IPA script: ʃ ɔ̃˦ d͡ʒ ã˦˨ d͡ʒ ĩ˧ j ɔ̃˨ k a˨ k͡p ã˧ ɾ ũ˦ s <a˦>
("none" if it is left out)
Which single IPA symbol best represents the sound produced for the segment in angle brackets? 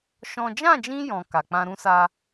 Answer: a˦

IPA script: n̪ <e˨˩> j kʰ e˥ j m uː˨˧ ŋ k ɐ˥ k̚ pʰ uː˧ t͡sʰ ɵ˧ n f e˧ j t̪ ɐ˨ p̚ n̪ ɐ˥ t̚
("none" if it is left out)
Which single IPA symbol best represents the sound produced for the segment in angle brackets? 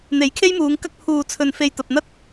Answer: e˨˥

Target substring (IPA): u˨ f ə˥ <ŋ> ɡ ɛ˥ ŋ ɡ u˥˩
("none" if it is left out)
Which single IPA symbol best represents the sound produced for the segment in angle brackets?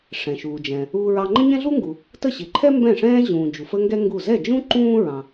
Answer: ŋ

